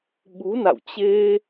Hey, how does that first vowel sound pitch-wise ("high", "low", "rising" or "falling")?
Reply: rising